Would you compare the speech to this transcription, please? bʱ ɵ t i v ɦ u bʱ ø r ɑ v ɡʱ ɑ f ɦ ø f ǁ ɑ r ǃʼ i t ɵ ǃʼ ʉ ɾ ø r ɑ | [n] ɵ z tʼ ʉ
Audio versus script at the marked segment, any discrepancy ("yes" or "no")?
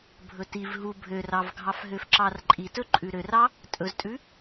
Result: yes